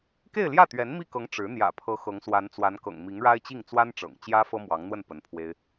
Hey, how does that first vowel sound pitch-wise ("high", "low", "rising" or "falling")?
falling